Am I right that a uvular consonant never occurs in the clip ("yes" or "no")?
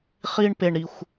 no